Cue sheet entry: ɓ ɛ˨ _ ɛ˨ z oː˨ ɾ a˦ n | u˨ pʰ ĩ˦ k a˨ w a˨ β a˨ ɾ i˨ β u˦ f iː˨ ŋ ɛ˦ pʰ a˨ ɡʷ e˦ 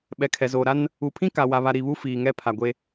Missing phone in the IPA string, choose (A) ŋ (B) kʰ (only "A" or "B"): B